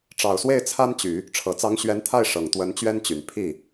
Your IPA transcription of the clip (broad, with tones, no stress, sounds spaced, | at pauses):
ʈ͡ʂ ɑ˨˩ ʊ̯ s w e˥˩ ɪ̯ t͡sʰ a˥ n t͡ɕ y˨˩˦ | ʈ͡ʂʰ ɤ˨˩ t͡s ɑ˧˥ ŋ ɕ ɥ ɛ˧˥ n t̪ʰ a˥˩ ɪ̯ ʂ ɤ˨˩ ŋ t̪ w ə˧˥ n t͡ɕ ɥ ɛ˥ n t͡ɕ y˨˩ n pʰ i˥˩